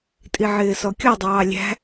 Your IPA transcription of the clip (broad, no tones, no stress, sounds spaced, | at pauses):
tʼ i ʕ ɪː s ɔ kʲ ɔ dˤ ɑː lʲ æ̤